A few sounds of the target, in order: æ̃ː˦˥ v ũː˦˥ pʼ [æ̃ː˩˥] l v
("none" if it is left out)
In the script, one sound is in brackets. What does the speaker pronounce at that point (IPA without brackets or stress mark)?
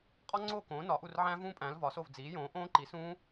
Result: æ̃ː˩˥